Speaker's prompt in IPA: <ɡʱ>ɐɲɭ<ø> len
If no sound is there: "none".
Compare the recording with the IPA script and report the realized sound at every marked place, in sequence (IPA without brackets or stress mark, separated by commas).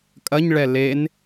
kʼ, ɛ